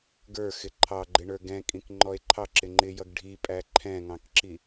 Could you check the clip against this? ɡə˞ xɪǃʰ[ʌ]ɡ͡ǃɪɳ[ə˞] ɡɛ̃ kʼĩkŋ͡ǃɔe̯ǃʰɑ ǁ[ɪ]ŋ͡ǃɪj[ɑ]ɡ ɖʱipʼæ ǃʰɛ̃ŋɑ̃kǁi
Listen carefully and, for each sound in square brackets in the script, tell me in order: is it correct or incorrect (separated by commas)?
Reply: incorrect, correct, correct, incorrect